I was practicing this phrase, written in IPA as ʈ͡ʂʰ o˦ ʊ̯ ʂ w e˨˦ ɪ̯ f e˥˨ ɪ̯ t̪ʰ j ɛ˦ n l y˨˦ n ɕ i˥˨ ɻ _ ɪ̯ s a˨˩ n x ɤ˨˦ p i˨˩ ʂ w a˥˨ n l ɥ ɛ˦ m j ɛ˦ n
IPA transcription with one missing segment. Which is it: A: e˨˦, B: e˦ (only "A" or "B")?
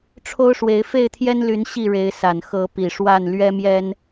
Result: A